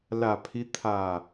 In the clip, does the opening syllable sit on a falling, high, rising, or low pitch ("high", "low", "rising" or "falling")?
low